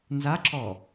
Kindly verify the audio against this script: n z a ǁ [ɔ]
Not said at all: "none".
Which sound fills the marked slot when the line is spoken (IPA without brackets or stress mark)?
ɔ